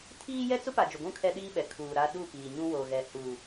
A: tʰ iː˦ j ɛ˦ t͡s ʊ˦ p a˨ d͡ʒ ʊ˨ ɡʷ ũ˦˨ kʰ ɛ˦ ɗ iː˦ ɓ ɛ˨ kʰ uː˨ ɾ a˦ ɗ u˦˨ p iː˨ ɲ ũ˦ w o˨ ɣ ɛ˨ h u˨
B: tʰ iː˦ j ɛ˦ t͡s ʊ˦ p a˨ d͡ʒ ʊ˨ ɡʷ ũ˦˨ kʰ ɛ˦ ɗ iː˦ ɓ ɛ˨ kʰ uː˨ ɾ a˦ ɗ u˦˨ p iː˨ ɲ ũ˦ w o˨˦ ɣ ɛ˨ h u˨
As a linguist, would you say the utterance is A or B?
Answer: A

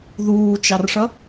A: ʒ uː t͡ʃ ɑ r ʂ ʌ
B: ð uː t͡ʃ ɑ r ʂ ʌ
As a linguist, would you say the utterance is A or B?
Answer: B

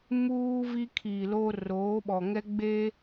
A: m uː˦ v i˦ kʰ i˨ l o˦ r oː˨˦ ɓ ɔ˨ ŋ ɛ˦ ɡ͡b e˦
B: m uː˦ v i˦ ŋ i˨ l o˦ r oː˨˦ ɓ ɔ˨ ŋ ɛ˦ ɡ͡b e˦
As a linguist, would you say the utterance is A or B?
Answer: A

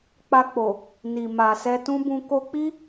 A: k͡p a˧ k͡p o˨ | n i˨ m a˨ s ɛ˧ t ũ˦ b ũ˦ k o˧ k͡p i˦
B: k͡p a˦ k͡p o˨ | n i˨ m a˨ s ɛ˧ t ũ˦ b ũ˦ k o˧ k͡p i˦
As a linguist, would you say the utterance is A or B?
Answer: A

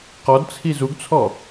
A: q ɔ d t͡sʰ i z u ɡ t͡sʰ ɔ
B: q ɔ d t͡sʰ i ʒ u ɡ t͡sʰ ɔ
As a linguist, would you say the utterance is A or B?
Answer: A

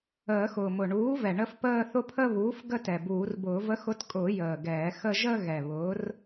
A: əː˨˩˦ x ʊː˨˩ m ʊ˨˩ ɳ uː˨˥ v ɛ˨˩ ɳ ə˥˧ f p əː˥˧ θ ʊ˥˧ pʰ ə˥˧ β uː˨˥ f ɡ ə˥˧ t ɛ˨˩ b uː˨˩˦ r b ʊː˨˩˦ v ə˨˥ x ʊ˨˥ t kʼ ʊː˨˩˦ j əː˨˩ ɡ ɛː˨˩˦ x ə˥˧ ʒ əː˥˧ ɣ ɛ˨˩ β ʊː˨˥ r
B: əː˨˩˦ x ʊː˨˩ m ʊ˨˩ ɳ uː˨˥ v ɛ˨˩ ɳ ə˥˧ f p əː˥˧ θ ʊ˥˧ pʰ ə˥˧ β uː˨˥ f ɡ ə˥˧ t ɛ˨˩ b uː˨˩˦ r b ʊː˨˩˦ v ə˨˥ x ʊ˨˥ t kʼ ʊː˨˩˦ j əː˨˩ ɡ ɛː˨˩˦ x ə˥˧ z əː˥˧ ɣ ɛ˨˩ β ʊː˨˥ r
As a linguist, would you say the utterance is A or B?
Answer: A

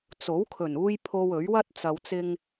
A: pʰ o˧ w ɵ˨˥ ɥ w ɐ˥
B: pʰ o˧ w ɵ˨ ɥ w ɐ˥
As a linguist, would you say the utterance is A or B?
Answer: A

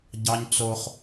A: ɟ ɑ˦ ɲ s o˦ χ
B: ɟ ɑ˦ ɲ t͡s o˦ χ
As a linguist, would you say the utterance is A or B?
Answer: B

